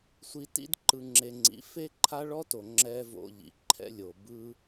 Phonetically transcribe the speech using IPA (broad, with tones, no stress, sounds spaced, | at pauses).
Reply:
sʷ i˧ t ḭ˦ d ǃ ɯ˧ ŋ͡ǁ e˧ ŋ͡ǀ ḭ˨˦ f e˦ ǃʰ a˦ ɭ ɔ˦ t o˨ ŋ͡ǁ ɛ˦ v o̰˧ ʎ ḭ˨ ǃʰ ɛ̰˦ lʲ o˨ b ɯ˦